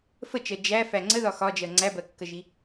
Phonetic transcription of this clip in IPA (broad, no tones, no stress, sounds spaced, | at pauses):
f ə t͡ʃ ɜ d͡ʒ æ f æ ŋ͡ǀ ə ð ɒ x ɒ d͡ʒ ɜ ŋ͡ǀ æ b ɜ kː ə ʒ i